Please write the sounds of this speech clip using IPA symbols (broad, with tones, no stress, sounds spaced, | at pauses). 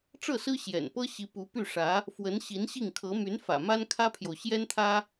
ʈ͡ʂ ɤ˥˩ s ɹ̩˥ ɕ j ɛ̰˨˩ n p ɤ˥ ɕ i˧˥ p u˧˥ p y˥˩ ʂ ä˧˥ | f w ə˧˥ n ɕ i˧˥ n ɕ i˥˩ ŋ kʰ ɤ˧˥ m y˧˥ n f ä̰˨˩ m a˥ n kʰ ä˥ pʰ j o˨ ʊ̯ ɕ j ɛ˥ n t̪ʰ ä˥